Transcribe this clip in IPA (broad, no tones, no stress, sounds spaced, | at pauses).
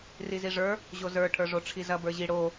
r i z i ʐ ə˞ | ʑ o z ə˞ ʈʰ ə˞ ʐ o ʈ͡ʂʰ i z ɐ b ə˞ ʑ i ɽ o